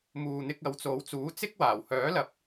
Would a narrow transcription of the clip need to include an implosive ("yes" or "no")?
no